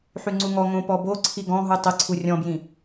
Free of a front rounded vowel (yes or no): no